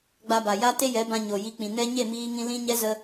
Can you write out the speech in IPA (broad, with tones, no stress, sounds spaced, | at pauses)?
ɡ͡b a˧ b a˨ j a˦ t e˦ j ɛ˨˦ b ã˧ ɲ o˨ j i˧ k͡p ĩ˨ n ɛ˦ ɲ e˦˨ m iː˧ ŋ ĩ˧ l ĩ˦ ɲ ɛ˦ z ə˦